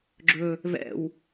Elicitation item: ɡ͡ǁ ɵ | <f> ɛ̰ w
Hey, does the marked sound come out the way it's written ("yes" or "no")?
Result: no